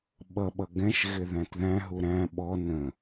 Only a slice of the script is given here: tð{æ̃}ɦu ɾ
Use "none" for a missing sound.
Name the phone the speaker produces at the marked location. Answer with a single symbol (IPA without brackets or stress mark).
æ̃